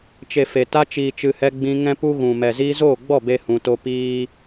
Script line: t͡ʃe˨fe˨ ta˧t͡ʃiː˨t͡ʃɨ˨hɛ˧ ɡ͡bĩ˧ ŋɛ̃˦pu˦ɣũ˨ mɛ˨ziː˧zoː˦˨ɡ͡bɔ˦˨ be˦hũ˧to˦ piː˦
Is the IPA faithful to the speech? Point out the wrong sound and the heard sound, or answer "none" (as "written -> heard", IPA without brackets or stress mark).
none